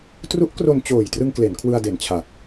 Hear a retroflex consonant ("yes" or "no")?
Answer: no